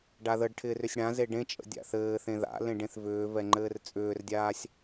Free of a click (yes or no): no